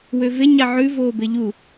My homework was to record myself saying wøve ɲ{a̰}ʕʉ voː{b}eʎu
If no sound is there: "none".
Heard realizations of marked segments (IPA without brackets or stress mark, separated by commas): a, b